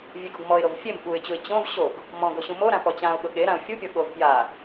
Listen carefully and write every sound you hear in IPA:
vʲeɡoɡmɔɪ̯ɾov fʲem ɓuɪ̯t͡ɕuɪ̯ t͡ɕõv ɕoɡ | mɔ̃ ɡoɕũmoɾã pɔt͡ɕãʊ̯ɠʊ ɠeɾãʊ̯ fʲupʲɔ ɠov pja

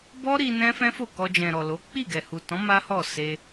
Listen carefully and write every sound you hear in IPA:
bɔ˦ɾi˧ nɛ̃˦fɛ̃˦fo˦˨ kɔ˧d͡ʒɛ̃˨ɾɔ˨lo˨˦ k͡pi˦˨ɡɛ˨hu˨tɔ̃˨˦ ma˦hɔ˦˨ se˧

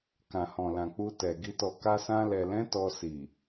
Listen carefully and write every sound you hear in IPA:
kã˨hɔ̃˨lã˨ k͡pu˧tɛ˨ ɡi˧tɔ˧ ka˧sã˧lɛ˨lɛ̃˨˦ tɔ˧si˨

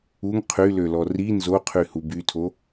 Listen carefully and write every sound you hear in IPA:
uŋ qʰylølɔ ri nzoqʰy hubytʰo

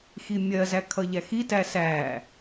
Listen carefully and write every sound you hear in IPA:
ximʲɜzæ kʰʌʎæxitæ sæ

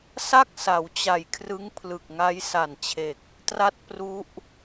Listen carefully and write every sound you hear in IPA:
sa˥˩k̚sa˩˦w t͡ɕa˨˩jkʰrɯ˦˥ŋ pʰlɯ˨˩k̚ ŋa˦˥jsa˨˩nt͡ɕʰe˨˩k̚ | tra˥˩t̚pru˦˥ʔ

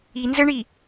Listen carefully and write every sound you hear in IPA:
i nzəɳi

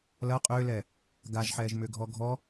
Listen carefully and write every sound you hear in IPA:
lɐ qʼʏːlɛ | ɡaʒħɛːʒ mʏːɡʱɔɡʱɔ

